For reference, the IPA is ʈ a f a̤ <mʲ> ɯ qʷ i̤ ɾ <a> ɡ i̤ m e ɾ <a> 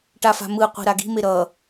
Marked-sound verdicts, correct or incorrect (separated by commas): incorrect, correct, incorrect